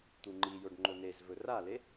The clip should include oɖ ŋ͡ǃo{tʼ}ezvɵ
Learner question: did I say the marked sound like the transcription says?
no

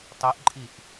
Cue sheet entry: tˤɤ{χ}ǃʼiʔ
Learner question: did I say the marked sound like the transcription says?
no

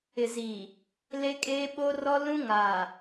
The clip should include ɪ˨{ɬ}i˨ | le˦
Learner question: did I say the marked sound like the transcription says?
no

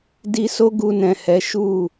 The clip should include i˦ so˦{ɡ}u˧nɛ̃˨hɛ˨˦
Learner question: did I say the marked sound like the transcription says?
yes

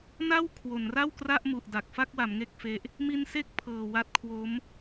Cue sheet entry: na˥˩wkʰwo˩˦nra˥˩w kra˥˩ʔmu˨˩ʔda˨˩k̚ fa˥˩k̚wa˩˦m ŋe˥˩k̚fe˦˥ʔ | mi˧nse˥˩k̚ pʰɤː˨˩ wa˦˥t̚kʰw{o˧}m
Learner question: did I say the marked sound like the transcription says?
no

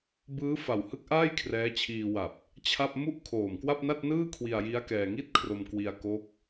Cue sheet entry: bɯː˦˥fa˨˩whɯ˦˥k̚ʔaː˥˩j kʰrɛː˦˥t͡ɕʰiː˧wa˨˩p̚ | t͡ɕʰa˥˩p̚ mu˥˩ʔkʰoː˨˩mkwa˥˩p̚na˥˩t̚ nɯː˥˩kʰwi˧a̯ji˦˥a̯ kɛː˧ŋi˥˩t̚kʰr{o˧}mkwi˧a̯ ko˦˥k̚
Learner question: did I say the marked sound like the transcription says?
yes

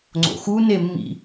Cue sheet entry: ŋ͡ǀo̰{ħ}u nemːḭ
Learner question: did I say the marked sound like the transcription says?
no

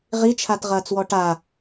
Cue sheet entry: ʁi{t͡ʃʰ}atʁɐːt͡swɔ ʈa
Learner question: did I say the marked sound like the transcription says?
yes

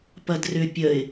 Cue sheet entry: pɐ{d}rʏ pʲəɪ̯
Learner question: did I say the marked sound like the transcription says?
yes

